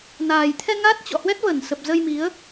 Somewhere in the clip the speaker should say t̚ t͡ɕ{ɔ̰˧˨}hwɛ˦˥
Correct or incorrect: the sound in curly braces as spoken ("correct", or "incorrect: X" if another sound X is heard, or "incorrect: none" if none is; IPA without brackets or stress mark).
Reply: correct